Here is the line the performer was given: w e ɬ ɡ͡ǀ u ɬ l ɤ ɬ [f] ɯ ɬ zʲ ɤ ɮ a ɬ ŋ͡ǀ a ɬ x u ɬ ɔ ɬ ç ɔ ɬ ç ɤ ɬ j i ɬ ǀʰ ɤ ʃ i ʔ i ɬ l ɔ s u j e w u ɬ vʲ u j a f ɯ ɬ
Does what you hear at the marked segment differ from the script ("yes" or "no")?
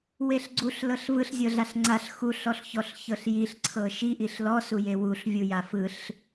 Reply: yes